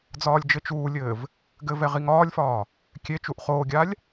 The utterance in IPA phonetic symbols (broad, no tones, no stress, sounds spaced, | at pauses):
d͡z ɒː lʲ d͡ʒ ɘ t͡ʃ uː lʲ ɘː v | ɡ ɘ v ɛ ʁ i ŋ ɒː lʲ f ɒː | kʲ e t͡ʃ u ʔ χ oː ɡʲ a lʲ